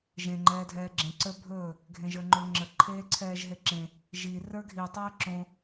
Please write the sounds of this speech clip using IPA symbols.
ʒ ẽ ŋ͡ǃ ɛː dʱ ɛː ɡ͡ǁ ẽ ǀ ə˞ bʱ ɵː | ɡʱ ẽ ʒ ə˞ ŋ͡ǃ o ŋ͡ǁ ə ǃʰ eː ǀʰ ɛː ʒ ɦ e ǁ ẽ | ʒ i r ə˞ ɡʱ i tˤ əː ǁ õ

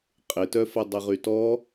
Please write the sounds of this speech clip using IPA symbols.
qʼ ɪ t œ f ɐ dˤ e ʁ y t ɔ

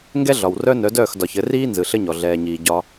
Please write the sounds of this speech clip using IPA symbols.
ŋ ɡ ɛ˦ ɮ ɒ˨ w r œ˦ n œ˨˦ d œː˦˨ x d ɒ˨ ç ɘ˨˦ r iː˦ n z ɯ˨ ɬ ɘ˦ ɲ ɔ˨ ɮ ɛː˨ ɲ iː˨ ɟ ɒ˦

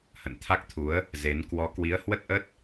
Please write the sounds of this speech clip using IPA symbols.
h ə̰˧˨ n t̪ʰ a˦˥ k̚ t̪ʰ u˨˦ ə̯ | z e˨˦ n k w ɔ˨˦ k w i˨˦ ə̯ h w ə˦˥ t̚ ʔ ə˦˥ t̚

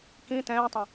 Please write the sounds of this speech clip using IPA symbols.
k ĩ t ɛ̃ː tˤ ə̃

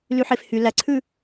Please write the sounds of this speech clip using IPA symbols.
l y ħ e f h y l æ ǀʰ ʉ

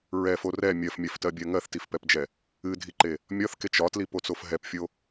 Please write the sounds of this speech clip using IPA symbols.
ɹ ɛ f o r ɛ mʲ ɜ f mʲ ɜ f t ɜ bʲ ɜ ŋ ɜ θ t i f p ɛ p d͡ʒ ɛ | ɨ dʱ i ǃ e | mʲ ɒ θ k e t͡ʃ ɒ t l i p o t͡s o f ɦ ɛ p fʲ o

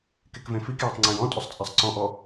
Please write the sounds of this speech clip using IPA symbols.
k e k v ẽ f i k j a tˤ ŋ͡ǀ ẽ j ɔ̃ tʼ ʊ sˤ t͡sʼ a sˤ ǀ ɔ̃ ʔ ɔ

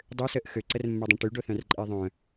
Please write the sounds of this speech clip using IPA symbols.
dˤ ø s əː ʔ x ø ǀ ə r mː œ dˤ ɐ̃ ʈ y ɖ o θ œ̃ r ǃʼ e ðˤ œ̃

